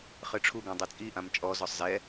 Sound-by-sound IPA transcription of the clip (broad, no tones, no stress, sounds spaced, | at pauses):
χ ɨ ʈ͡ʂʰ u ɡ ã dˤ i t͡sʼ i ʔ ã m t͡ʃʼ ɔ z ɔ sˤ z ɛ